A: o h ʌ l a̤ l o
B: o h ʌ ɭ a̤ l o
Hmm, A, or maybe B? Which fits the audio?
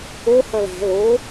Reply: A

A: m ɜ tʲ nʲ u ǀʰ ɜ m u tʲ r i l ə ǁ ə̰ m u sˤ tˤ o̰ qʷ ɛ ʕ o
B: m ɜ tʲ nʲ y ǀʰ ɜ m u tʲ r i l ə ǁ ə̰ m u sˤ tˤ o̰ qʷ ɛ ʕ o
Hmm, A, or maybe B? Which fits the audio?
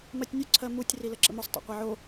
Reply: A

